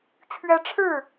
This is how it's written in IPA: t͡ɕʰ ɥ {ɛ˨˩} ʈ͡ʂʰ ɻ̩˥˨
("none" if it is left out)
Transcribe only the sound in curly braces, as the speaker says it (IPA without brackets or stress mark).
ɛ˦